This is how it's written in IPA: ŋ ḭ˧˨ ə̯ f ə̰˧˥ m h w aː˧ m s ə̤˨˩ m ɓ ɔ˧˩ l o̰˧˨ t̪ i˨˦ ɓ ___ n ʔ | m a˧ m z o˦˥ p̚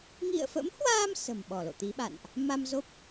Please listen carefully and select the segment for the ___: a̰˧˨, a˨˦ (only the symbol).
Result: a̰˧˨